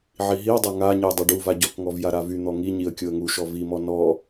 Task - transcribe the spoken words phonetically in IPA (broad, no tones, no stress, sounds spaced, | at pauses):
ʕ i ɦ i ə̯ dˤ a ŋ a ɲ ə j dˤ a ɖ u v a ɟ ɔ k ŋ ɔ v j a ɾ a v y n̪ ɔ ŋ i ɲ i ə̯ kʲ o ə̯ ŋ u ʃ ɔ v i m ɔ n ɔ